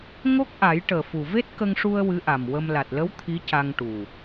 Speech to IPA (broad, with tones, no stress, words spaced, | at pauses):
ŋo˦˥k̚ʔa˨˩˦j ʈəː˨˩fu˨˩ ve˦˥t̚kə˧ŋʂu˧ə̯ wɨ˧˥ʔa˨˩mwə˧m la˨˩t̚lə˧˥w t̪ʰi˧˥ca˧ŋʈu˨˩